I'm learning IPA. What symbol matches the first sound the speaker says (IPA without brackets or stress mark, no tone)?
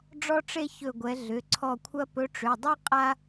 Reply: ɖ͡ʐ